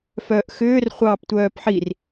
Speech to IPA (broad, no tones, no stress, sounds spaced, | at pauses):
f œː ʔ x ʏː r χʷ ɑː p tʷ œː p ħ i r